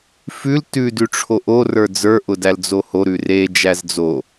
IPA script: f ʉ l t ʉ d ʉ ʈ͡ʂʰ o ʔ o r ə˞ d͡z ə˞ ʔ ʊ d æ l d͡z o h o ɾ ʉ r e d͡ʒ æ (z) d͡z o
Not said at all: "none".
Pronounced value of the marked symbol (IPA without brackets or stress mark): z